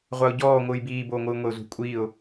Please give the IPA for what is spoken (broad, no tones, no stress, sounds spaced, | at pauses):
ʁʷ a ʊ̯ ɟ ɔː ŋʷ ɯː j b iː b oː ŋʷ ɯː ŋʷ e ʊ̯ z ṳ kʷʼ iː ʊ̯